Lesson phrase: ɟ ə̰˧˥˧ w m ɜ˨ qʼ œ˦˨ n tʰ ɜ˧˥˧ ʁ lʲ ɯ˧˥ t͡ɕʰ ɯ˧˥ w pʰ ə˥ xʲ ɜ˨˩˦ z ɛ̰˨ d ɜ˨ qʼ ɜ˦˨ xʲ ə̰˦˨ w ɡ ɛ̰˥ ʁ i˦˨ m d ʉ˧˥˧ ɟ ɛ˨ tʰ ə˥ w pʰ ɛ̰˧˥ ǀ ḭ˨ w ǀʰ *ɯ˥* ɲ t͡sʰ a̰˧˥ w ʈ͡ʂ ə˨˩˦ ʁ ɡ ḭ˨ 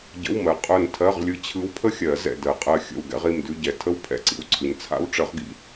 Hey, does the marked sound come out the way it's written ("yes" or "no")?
no